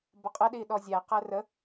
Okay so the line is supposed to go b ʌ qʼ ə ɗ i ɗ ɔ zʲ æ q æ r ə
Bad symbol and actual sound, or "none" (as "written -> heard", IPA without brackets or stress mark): none